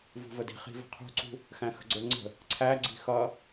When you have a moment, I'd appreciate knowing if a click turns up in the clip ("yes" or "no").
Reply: yes